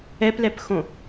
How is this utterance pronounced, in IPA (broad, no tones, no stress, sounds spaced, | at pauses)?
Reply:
ɛ p l ɛ p x õ